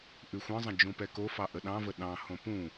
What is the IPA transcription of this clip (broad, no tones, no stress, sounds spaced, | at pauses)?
ʔ ʉ xʷ ə̃ zˤ ə̃ d͡ʒ ũ p ɛ k o f ɑ ʔ ə ɗ ɑ̃ v ə ɗ ɑ̃ h õ p ũ